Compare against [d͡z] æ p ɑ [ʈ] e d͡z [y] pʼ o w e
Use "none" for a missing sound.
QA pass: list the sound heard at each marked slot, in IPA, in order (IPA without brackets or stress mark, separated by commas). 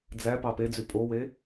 d͡z, p, y